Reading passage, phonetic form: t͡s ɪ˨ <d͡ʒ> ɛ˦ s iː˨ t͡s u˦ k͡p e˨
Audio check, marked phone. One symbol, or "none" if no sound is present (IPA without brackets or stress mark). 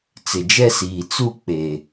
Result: d͡ʒ